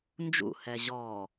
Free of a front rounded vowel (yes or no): yes